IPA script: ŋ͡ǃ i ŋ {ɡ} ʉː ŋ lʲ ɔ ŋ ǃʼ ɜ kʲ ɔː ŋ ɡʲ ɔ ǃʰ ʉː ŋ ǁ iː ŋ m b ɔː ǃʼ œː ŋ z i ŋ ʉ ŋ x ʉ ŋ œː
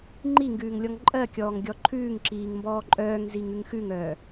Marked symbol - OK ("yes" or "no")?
yes